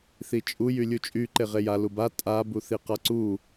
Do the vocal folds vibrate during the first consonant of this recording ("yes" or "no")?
no